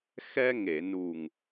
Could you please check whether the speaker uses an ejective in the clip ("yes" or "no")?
no